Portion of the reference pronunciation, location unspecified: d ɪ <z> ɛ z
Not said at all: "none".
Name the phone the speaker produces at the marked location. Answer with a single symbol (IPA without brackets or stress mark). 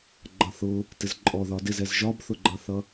z